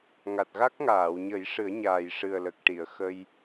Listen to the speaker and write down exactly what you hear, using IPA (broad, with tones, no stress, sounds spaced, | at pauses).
ŋ a˨˩ t̚ ɣ a˦˥ k̚ ŋ aː˨˩˨ w ɲ ə˨˩˦ j ʂ ɨ˨˩˦ ə̯ ɲ aː˨˩ j ʂ ɨ˨˩ ə̯ l ə˨˩ k̚ ʈ i˨˩˨ ə̯ x ə˧ j